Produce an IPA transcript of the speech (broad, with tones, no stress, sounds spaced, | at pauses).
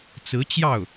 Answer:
t͡s ɹ̩˧˥ t͡ɕ j ɑ˥˩ ʊ̯